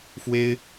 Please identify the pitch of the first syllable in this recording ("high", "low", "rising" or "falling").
high